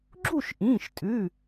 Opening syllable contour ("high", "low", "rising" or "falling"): falling